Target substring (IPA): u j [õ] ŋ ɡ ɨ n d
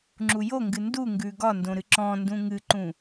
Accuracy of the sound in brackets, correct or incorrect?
incorrect: o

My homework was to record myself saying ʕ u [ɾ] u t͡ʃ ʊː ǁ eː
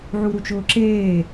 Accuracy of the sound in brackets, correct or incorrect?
correct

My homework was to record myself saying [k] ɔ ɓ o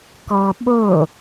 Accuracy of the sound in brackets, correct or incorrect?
correct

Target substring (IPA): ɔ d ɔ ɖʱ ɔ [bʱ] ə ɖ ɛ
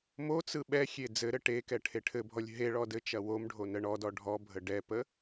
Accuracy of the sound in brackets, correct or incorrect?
correct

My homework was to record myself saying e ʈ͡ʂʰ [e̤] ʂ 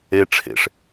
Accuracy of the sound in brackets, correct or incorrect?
incorrect: ḛ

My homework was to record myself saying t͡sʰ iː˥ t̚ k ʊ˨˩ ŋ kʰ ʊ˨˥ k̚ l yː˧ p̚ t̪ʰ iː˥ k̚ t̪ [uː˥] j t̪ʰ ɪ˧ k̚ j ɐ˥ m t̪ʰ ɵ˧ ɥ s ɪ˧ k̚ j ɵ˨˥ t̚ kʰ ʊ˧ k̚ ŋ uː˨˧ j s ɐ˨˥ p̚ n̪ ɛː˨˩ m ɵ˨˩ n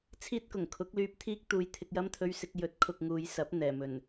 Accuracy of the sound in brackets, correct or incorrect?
incorrect: uː˧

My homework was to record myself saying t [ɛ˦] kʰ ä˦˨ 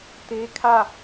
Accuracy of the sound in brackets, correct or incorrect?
incorrect: e˦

